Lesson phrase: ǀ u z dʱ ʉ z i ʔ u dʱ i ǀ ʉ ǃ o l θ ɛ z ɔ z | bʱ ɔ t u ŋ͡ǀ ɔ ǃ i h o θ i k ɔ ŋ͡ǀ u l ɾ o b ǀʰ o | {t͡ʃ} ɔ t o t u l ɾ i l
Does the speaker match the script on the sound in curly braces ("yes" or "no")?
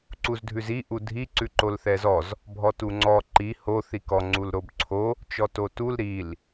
yes